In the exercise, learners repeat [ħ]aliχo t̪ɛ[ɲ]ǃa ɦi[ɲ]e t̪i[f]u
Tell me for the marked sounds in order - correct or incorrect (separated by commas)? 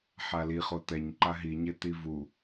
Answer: correct, correct, correct, incorrect